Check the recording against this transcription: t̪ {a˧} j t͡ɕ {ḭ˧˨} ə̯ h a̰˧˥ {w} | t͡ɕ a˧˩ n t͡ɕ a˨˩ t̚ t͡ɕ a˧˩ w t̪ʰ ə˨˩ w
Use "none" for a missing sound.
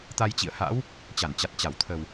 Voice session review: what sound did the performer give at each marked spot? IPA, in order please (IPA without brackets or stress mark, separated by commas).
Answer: a˧, ḭ˧˨, w